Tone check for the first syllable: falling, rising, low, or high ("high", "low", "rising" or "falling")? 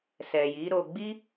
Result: low